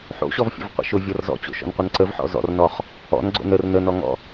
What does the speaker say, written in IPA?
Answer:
ħo̰ɕɔvfʲə̰vqʷə̰ ʃʊvʲɔr zɔ̰t͡ɕo̰ʃɔ̰nqʷən ǀəvħɔ̰ zɔ̰rnɔχ | ɔ̰nɡ͡ǀo̰n ər nənɔŋɔ̰

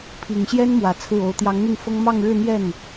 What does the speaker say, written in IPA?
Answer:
pʰi˨˩ŋɕjɛ˥nmwä˨˩ t͡sʰɹ̩˥˩o˧˥ʊ̯ t̪jɑ˧˥ŋn̪i˥˩ŋfɤ˥ŋ mɑ˥˧ŋɻɻ̩˥˧n̪jɛ˥˩n

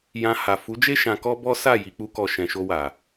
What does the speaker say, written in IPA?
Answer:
jã˧ ha˨ fu˨˦d͡ʒe˦ ʃã˧kɔ˦ bɔ˦sa˦˨ ji˧k͡pu˦kɔ˧ ʃɛ̃˨ʃo˧wa˨

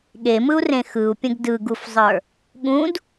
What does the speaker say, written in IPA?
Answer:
ɠemɯu̯rẽ xɯu̯pʲə̃ɡ dɯɡufzˤə˞ | ɠũd

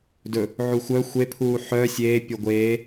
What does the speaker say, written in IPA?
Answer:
dɵ | ʕuxʷœ xʷe pʰuːħœ sʲeːpʲo ɡʷeː

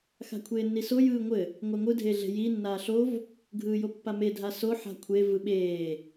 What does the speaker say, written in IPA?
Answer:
xa̤kʷʰeːnːiso jɯːŋʷɘ | ŋʷaŋʷɯ dʱeɮe̤ji nːaːɬov | ɡʱɯːjopːame dʱaso ħa̤kʷʰe vɯɓeː

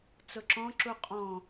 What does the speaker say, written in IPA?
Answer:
t͡sʊǁɔ̃ǁu qʼɔ̃

